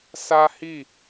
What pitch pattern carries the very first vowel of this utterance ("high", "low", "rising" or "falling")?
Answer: high